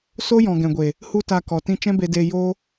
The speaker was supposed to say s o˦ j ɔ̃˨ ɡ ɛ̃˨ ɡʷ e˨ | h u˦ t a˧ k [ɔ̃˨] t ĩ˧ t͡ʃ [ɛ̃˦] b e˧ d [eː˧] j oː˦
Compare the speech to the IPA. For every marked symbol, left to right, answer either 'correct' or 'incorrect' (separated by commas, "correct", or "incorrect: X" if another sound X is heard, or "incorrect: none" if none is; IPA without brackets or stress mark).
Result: incorrect: ɔ˨, correct, correct